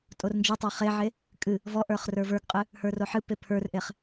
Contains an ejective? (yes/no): yes